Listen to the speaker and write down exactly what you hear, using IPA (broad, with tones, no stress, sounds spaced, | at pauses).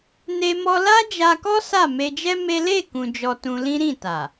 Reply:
n e˧ m ɔ˧ l a˦ d͡ʒ a˧ k ɔ˦ s a˦˨ m e˧ d͡ʒ ɛ˦ m e˦ l e˦˨ k ũ˧ d͡ʒ ɔ˧ t ũ˧ l ĩ˦ ɾ ĩ˦˨ t a˨